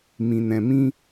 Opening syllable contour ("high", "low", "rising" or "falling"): low